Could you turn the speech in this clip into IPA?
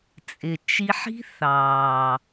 t͡sʼɪ˨t͡ʃi˧ħi̤˦ θɑː˨

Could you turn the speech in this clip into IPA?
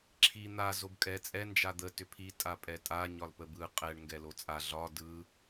ǁʰi n̪a zobkʼɛ t͡sʼɛ nd͡ʒad̪ə tʏpʰi tʼapʼɛtʼa ɲɒlpəbɯ qʼɛɳ ŋɡɛlot͡sʼa ɮɒ dɯ

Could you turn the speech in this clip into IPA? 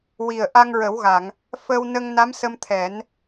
wi˨˩ə̯ ʔa˧ŋɹə˨˩˦wɣa˨˩˨ŋ | fəː˧wnə˧ŋ na˧˥msə˧m t̪ʰɛ˨˩˦n

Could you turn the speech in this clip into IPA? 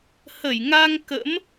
hə˧˩jŋa˧ŋ kə̰˧˥m

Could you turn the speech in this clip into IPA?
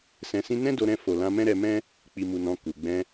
sɛ̃˧sĩ˦ nɛ̃˦do˧ɾɛ̃˧ fo˨ lã˧mɛ̃˦ɾɛ˧mɛ̃˦ | k͡pi˨mu˨nɔ̃˨ ku˨ɡ͡bɛ̃˧

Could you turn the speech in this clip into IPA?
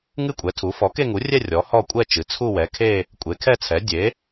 ŋɨ˥˧kʷʼɛ˩˥tʰu˩˥ fɔ˩˥ke˥˧ŋu˩˥rʲɛ˥˧ rʲɔ˩˥hɔ˥˧ kʷʼɛ˥˧ t͡ʃɨ˩˥ t͡sʰu˥˧wɛ˩˥ kʰe˥˧ | kʷʼe˩˥kʰɛ˥˧t͡sʰɛ˩˥ dʲe˩˥

